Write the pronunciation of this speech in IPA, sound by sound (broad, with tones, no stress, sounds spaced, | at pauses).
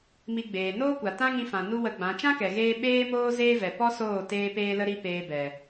m i˧ ɡ͡b eː˨ n oː˦ kʷ a˨ t ã˦ ŋ ĩ˧ f ã˨ n u˦ w ə˧ ɡ͡b ã˨˦ t͡ʃ ã˦ k ɛ˨ ɣ eː˧ ɓ eː˦ m oː˦ z eː˦ v ɛ˨ p ɔ˦ s oː˦˨ t eː˦ p eː˦ l ə˦ ɾ i˦ p eː˧ b ɛ˨